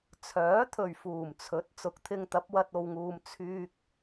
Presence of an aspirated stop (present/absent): present